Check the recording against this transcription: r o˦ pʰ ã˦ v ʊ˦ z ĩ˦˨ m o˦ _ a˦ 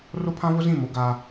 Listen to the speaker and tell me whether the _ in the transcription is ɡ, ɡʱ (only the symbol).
ɡ